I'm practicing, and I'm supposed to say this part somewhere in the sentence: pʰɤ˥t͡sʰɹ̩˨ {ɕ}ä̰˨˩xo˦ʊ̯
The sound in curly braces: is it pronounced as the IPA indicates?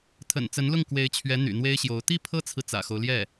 no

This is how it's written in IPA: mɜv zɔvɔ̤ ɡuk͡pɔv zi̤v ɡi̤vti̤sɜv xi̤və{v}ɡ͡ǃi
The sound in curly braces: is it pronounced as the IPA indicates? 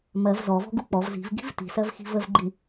yes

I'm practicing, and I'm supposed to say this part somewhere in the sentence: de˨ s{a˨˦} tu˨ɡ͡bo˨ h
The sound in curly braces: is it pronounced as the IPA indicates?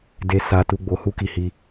no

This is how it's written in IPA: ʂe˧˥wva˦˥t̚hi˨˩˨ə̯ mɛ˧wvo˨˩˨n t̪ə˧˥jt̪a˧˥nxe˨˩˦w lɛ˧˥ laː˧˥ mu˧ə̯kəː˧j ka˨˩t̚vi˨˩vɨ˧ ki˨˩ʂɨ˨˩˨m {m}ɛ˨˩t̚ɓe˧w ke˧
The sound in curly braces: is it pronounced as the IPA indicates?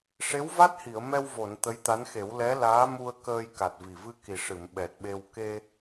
no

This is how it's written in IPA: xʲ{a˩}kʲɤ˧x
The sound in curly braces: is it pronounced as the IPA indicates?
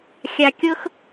yes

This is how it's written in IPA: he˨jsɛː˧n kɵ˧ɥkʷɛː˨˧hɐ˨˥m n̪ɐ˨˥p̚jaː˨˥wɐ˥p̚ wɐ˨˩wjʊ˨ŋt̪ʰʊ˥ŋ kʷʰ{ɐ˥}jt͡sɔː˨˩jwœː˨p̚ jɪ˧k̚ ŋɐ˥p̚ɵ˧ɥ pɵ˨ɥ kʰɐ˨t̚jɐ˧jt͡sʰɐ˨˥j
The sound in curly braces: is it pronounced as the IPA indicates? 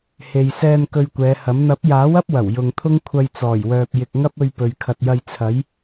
no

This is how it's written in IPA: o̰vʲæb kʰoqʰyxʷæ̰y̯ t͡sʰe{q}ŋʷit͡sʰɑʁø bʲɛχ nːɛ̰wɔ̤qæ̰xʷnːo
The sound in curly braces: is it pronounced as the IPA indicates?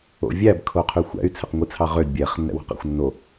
yes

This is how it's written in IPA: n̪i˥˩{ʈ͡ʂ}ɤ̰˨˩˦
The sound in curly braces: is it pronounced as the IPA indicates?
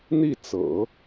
no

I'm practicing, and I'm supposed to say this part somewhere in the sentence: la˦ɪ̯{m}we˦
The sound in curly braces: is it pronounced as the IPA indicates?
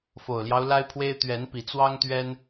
no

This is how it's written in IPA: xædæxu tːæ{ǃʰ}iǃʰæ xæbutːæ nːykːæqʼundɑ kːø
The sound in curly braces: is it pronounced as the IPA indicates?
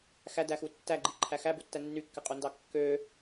no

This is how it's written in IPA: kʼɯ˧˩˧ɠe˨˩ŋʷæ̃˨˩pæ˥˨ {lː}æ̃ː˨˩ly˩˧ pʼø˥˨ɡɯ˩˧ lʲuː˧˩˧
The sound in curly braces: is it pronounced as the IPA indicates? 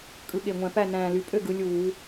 no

